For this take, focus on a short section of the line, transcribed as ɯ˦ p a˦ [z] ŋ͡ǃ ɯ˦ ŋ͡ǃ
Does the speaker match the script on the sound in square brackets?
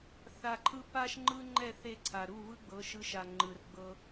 no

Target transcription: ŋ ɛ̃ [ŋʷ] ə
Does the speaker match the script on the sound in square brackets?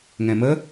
no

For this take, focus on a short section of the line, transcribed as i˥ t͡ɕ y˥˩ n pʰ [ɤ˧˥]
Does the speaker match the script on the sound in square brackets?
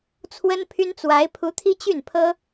no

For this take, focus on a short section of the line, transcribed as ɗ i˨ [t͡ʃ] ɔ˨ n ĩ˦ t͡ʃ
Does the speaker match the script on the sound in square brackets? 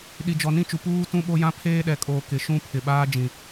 no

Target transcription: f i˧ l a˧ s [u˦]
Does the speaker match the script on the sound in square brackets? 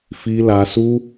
yes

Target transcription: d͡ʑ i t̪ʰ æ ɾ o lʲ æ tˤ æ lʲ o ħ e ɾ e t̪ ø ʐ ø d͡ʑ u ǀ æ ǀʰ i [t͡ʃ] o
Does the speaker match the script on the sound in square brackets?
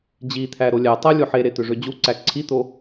no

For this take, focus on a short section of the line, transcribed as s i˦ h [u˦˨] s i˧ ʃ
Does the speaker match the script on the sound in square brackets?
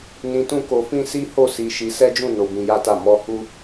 no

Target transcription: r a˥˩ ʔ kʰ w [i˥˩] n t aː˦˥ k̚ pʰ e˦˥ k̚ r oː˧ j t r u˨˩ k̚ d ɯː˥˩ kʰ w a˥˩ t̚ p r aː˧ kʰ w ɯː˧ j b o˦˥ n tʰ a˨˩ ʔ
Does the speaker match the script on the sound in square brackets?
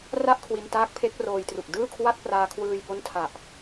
no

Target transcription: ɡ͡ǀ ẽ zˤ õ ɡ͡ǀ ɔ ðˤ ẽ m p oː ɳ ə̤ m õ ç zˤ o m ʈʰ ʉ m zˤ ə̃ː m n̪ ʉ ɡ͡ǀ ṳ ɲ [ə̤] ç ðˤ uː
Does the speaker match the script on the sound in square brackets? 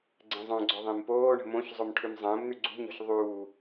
no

